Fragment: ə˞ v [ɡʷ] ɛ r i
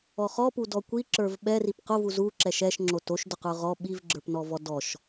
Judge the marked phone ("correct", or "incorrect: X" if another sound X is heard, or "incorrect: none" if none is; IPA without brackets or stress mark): incorrect: ɓ